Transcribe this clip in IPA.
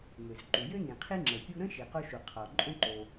m ø˩ z ǃ u˩ j ø˥ n ĩ˩ qʰ i˥ ŋ͡ǁ ə˩ pʲ u˥ ɾ ə̃˥ ʃ i˩ q o˥ ʃ u˩ qʰ ɔ˩ ǃʼ õ˥ ǃ o˩

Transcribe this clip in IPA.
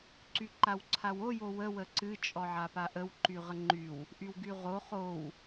ǀ y ǃ a w ǀʰ a w o j o w ə w ə ǀ ɨ t͡ʃʼ ɔ ʕ a p a ʔ ə w ǃ y ʁ ə ŋ͡ǃ y w | ʔ y w ɡ y ʁ o χ o w

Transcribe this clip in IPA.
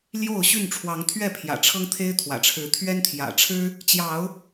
l j o˥˨ ʊ̯ ɕ y˥˨ n ʈ͡ʂʰ w ɑ˨˦ ŋ t̪ʰ ɥ ɛ˥˨ pʰ j ä̰˨˩ ʈ͡ʂʰ ɤ˦ ŋ t̪ʰ e˦ ɪ̯ t̪ʰ w ä̰˨˩ ʈ͡ʂʰ ɻ̩˨˦ t̪ʰ ɥ ɛ˦ n t̪ʰ j ä̰˨˩ ʈ͡ʂʰ ɻ̩˦ | t͡ɕ j ɑ˨˦ ʊ̯

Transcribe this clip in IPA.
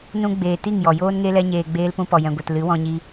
n ũ˧ ɡ͡b eː˨ t i˦˨ ŋ j ɔ˨ j oː˦ n ŋ e˦ l ɛ˦ ɲ eː˧ ɡ͡b eː˧ l p ũ˧ p ɔ˨ j ɛ̃˨ ɡʷ ɛ˨ t l ɨ˨˦ w ɔ̃˧ ɲ i˧

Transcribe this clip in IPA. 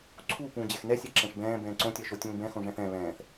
ǀʰ u p ũː d͡ʑ ɛ x n ɛ sʲ ɛ ǁ ɛ̃ ʂ b ɛ̃ː b ɛ̃ː ǀ õ tʲ ɜ ʃ o tʲ ũː b ɛ̃ x õ ʐ ɛ̃ θ ɛ̃ β ɛ̃ː θ

